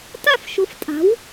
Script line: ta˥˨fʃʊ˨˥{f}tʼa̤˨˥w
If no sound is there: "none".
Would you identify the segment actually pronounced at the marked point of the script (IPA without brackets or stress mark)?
f